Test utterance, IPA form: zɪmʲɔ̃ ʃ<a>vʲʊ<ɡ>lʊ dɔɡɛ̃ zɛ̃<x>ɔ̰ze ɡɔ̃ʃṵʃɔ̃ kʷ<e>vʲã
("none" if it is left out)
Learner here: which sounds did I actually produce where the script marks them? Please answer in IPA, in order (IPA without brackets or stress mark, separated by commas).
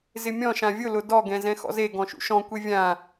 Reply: ã, none, x, e